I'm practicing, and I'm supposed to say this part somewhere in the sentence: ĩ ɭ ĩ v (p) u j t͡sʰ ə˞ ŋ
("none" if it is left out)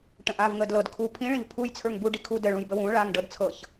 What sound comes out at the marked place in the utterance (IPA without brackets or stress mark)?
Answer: pʰ